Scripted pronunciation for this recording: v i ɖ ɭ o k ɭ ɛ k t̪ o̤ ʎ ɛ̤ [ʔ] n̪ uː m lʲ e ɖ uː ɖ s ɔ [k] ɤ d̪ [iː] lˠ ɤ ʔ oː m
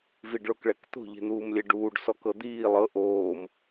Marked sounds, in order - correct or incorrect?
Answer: incorrect, correct, correct

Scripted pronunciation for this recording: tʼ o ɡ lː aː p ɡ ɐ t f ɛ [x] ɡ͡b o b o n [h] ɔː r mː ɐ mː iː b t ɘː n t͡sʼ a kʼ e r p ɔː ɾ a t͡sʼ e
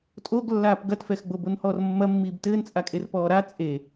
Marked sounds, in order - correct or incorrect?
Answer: correct, correct

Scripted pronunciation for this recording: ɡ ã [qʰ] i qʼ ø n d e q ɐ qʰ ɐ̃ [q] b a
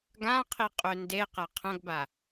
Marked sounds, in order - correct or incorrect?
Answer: correct, incorrect

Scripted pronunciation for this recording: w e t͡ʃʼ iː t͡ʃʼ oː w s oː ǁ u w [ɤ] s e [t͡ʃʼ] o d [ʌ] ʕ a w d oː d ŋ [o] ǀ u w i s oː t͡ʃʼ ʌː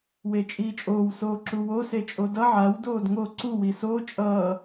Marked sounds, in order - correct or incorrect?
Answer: incorrect, correct, correct, correct

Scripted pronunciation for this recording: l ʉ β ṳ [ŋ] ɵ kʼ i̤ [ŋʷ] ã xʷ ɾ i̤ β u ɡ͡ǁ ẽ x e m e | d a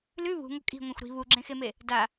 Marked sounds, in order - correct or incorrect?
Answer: correct, correct

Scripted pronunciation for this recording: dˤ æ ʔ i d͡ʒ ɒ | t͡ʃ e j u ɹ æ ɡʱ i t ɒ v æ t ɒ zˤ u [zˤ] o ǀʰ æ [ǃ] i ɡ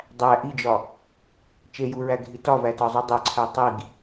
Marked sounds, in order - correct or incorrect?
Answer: incorrect, incorrect

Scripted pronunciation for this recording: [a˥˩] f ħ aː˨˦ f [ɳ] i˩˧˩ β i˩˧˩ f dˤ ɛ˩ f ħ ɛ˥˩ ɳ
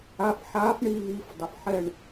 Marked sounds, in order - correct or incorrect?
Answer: incorrect, correct

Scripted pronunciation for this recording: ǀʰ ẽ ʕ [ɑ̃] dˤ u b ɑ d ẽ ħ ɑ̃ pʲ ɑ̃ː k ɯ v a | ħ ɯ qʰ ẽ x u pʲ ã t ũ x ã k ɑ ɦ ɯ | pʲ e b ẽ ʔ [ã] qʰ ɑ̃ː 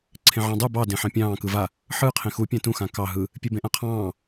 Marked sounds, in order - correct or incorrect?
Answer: correct, correct

